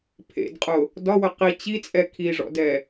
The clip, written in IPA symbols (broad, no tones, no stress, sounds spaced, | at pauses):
pʰ ḛ d qʼ ʊ | d ɒ w ə q i t͡ɕ i t͡sʼ ɛ kʰ i ʐ ɔ̰ d ɛ